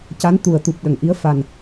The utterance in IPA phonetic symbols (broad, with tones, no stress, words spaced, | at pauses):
ca˧˥nt̪u˨˩ə̯t̪u˨˩p̚ ɗə˨˩ŋʔi˧˥ə̯ fa˨˩n